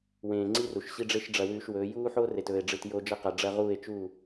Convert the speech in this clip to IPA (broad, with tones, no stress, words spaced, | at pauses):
wẽː˨ ŋ͡ǀi˦ru˨ʃɕi˦ɖ͡ʐe˦ʃ ɖ͡ʐɐ˨wʉː˨ʃ wɵː˨˦ juː˦ħo˦ re˨tɵː˨e̯ ɖ͡ʐɨ˨t jo˦ d͡ʒɐ˦qa˨ ɖ͡ʐɐ˦ʁuː˦˨e̯t͡ʃu˦˨